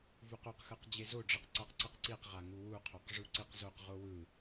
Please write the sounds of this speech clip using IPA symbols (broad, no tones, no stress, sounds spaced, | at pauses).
v u q o q x ɯ q d͡ʑ e z o ɖ͡ʐ ɯ q ǀ a q ǀ ɯ q ǀ i q ʁ a ŋ u w u qʰ o q ʐ u ǀ i q z o q ʁ o w ɯ